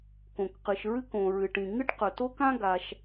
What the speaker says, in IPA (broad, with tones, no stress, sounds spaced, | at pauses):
k õ˩ k q ɨ˩ ʃ ɹ ɨ˥ k õ˩ ɹ ɨ˩ ʈ ĩ˩ ŋ ɨ˥ ʈ q ɵ˩ t o˥ k ã˥ ɡ a˩ ʃ